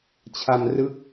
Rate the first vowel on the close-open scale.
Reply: open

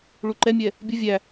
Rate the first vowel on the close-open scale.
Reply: close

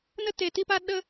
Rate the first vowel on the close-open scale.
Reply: mid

